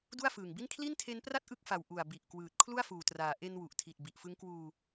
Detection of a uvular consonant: absent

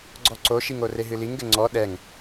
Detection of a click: present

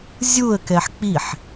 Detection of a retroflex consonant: absent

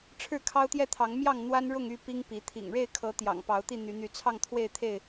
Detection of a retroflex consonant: present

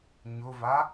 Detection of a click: absent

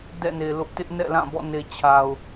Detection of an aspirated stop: present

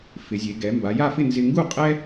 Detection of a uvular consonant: present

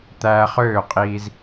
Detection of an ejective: present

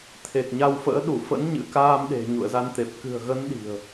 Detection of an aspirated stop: present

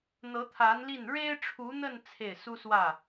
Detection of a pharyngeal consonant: absent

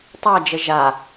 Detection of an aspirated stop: absent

